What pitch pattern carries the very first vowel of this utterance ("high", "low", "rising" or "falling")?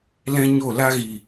high